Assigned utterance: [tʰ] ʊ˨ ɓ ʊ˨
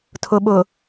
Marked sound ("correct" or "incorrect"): correct